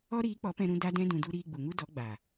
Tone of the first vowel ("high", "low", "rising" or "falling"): high